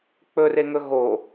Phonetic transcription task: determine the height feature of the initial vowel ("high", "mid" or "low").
mid